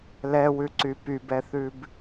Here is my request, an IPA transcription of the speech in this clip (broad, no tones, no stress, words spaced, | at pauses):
lɛwʉǀy pybɛθʉb